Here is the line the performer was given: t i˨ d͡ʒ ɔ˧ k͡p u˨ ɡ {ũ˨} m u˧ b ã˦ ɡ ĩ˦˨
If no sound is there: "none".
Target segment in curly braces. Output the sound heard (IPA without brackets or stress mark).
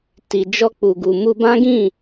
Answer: u˨